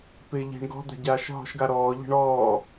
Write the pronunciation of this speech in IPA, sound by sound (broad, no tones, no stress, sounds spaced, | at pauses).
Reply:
p ɪː ʎ i̤ ɳ ɡ ɔ̤ d̪ a̤ ɟ aː ʃ ɦ ɔ̤ ʃ ɡ a ɾ ɔː ʎ ə̤ ɳ ɔː